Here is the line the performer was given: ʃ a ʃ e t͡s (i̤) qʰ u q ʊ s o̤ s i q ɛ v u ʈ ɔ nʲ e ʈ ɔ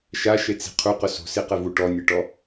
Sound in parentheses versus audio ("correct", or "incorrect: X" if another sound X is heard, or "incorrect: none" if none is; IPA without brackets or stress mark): correct